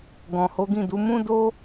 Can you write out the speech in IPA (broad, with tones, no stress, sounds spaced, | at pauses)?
ɡ ɔ̃˨ h o˨˦ ɡ ĩ˦˨ d u˨˦ m ũ˦ d o˦